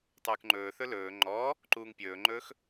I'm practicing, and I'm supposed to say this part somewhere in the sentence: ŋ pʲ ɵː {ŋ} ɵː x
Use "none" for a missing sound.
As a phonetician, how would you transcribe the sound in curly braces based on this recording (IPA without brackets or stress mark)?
ŋ͡ǃ